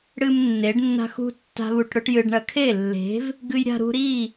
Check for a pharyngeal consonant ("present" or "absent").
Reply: absent